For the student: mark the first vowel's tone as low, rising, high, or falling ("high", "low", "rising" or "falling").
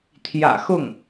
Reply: low